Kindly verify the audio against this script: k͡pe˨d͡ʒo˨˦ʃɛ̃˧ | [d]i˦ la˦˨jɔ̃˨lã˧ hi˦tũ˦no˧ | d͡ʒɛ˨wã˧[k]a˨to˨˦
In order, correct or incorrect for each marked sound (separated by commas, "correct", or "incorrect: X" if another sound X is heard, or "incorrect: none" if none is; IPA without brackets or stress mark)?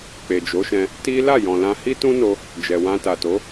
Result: incorrect: t, incorrect: t